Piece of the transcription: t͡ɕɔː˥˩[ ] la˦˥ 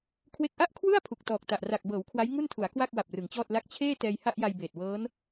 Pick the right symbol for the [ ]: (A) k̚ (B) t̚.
B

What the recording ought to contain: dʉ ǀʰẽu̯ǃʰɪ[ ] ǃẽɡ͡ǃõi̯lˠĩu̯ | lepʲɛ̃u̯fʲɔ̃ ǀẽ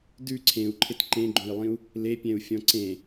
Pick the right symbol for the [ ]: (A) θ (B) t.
B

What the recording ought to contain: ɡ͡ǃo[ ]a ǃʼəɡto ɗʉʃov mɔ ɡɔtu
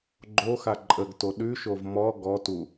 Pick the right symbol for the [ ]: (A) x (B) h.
A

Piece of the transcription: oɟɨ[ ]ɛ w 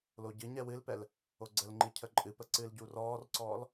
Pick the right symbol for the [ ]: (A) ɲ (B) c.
A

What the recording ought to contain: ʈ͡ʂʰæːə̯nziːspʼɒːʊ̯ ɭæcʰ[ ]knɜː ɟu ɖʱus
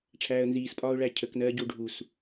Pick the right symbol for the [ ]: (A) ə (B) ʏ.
A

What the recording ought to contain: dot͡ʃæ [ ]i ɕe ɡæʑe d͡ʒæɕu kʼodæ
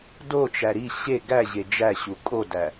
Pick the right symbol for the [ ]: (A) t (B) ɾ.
B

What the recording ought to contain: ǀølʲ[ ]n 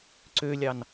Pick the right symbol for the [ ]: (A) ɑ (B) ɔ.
A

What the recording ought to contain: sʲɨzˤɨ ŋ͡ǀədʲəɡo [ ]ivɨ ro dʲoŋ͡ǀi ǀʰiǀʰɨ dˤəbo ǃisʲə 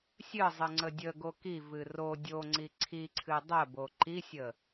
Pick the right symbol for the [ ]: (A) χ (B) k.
B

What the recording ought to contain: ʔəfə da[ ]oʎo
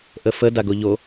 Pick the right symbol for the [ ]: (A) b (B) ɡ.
B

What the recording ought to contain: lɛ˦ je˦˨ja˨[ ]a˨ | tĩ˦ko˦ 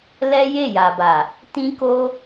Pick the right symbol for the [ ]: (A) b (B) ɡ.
A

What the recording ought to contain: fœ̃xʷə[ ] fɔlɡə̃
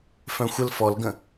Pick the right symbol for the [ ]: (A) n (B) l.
B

